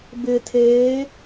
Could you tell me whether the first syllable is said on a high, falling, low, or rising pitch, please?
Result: low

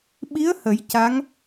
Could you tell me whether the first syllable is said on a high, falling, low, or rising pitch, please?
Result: rising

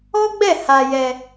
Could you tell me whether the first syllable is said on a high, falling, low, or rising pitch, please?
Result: high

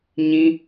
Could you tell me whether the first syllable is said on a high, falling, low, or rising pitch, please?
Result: high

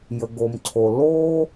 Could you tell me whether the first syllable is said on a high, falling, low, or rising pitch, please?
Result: low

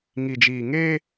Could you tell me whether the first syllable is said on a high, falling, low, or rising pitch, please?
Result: low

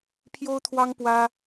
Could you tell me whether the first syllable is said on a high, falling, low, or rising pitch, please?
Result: high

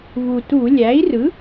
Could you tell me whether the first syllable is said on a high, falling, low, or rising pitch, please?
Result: low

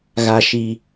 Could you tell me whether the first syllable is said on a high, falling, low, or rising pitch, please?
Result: low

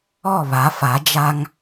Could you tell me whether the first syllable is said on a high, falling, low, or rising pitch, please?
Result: falling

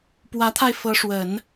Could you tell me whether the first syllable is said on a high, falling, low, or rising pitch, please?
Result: rising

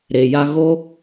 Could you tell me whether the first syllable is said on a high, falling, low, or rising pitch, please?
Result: low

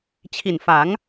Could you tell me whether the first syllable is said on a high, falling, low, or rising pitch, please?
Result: low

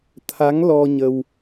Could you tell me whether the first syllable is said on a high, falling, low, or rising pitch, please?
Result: rising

